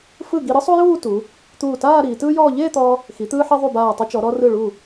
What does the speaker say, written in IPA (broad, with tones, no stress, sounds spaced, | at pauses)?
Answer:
f ɯ˧˩ ɡ i˧ ɾ ɯ˥ sˤ u˥ j uː˥˧ t u˩˧ | t̪ uː˧˩ t aː˥˧ ɾ iː˩˧ t ɯː˥ j ɔː˥˧ ʎ eː˥˧ t̪ ɔː˧ | x i˩˧ t̪ ɯː˧ ħ e˧ ðˤ u˧˩ b aː˧˩ tˤ u˧ t͡ʃ ɔ˩˧ ɾ ɔ˧ r ɯ˧˩ ɭ u˧˩